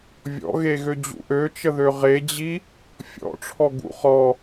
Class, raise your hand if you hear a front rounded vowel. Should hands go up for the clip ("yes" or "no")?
yes